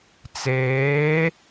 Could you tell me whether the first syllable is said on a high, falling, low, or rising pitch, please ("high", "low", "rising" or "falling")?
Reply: rising